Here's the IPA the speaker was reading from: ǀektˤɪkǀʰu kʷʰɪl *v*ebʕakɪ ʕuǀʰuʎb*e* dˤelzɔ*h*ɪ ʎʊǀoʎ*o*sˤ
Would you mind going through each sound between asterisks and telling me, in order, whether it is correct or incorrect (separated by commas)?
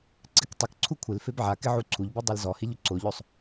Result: incorrect, incorrect, correct, correct